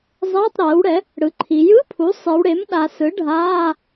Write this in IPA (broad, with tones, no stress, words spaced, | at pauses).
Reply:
zˤɛː˧˥˧tˤɾɛː˩˥wɽɛ˩˥ | ɽɯ˩˥ǃʰi˩˧ jɯ˧˥˧pʰu˩˥ sˤi˩˧wɽe˩˥m ɗa˩˧sɯ˩˥ ɖʱaː˧˥˧